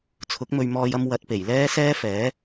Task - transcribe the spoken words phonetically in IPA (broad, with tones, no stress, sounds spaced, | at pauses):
t͡sʰ ʊ˨˥ k̚ m ɵ˧ ɥ m ɔː˧ j ɐ˧ m w ɐ˨˥ t̚ p e˨˩ j l ɛː˥ s ɛː˥ f ɛː˨˥